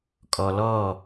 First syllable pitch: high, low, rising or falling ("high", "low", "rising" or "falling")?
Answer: low